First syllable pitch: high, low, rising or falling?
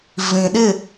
low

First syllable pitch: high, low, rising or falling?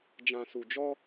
low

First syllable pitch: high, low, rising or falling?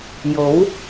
rising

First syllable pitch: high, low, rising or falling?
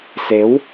rising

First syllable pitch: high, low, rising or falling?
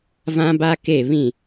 high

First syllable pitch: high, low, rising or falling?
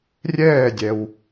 falling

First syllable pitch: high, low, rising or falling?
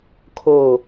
low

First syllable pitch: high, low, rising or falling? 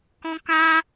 high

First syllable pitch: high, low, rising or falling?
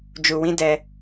low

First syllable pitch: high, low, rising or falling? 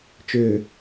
low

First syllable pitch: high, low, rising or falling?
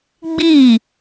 falling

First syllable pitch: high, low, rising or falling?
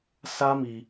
high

